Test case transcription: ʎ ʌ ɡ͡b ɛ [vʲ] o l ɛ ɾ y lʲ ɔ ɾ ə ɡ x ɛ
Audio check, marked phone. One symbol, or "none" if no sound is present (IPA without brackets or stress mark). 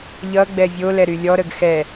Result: vʲ